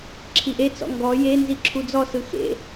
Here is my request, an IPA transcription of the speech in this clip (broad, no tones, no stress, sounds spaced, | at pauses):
ǁʰ i ʔ e t͡s ɔ̰ ŋ ɡ ɔ j e n z i ǁʰ u d͡z ɔ s ɯ x ḛ